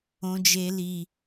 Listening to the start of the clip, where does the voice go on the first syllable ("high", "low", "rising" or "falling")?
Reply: high